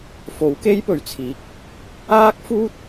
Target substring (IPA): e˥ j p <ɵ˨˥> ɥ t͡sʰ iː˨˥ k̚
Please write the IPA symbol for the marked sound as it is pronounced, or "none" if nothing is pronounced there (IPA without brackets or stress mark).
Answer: ɵ˨˩